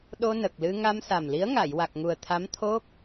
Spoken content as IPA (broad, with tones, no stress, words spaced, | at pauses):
ɗo˧nə˨˩k̚lɨ˧ ŋa˧msa˨˩mli˧˥ə̯ŋa˨˩˨j wa˨˩k̚ŋu˨˩ə̯t̪ʰa˧˥m t̪ʰo˦˥k̚